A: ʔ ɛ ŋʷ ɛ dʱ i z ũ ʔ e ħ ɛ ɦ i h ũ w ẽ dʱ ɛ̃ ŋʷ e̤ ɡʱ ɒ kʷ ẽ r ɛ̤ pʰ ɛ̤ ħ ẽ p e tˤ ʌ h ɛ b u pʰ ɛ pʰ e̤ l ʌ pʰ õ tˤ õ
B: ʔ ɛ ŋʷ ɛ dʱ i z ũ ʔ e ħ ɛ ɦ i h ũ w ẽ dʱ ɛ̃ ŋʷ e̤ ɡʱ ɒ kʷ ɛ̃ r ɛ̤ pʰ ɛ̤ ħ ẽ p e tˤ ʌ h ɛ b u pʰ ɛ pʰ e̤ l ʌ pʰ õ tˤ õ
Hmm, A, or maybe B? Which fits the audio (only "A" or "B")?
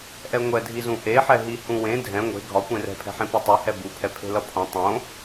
A